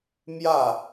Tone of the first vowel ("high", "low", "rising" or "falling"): falling